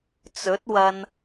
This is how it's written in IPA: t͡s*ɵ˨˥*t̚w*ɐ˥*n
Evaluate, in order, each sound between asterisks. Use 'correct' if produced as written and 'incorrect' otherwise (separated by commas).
correct, incorrect